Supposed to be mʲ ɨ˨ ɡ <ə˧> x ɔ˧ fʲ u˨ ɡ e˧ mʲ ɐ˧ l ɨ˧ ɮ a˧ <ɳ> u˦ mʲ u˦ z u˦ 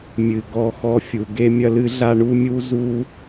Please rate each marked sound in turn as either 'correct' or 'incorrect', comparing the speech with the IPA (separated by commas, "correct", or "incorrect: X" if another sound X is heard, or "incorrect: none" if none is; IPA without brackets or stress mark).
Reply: incorrect: ɔ˧, correct